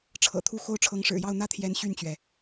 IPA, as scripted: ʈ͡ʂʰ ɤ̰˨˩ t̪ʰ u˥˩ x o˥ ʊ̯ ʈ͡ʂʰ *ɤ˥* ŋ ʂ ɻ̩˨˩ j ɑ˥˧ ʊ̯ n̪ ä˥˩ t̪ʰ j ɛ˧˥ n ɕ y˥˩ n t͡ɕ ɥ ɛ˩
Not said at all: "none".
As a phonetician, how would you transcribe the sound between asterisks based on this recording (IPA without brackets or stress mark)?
ɤ˧˥